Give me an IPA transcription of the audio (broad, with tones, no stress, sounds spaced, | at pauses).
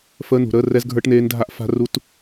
f əː˧˥˧ n ṳ˧˩˧ ɾ əː˧˥˧ r ɛ˦˥ z ɡʱ ə˞˦˥ ʈ n eː˦˥ n dʱ a˦˥ ʔ f a̤˦˥ r u˦˥ t